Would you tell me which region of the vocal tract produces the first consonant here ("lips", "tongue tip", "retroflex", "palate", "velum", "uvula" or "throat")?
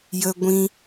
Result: palate